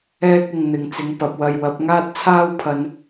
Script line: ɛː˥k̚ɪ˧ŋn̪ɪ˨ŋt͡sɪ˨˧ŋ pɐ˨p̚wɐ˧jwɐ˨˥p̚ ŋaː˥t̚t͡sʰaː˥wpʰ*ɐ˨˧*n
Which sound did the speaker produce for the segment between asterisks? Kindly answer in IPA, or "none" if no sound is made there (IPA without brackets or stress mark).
ɐ˨˧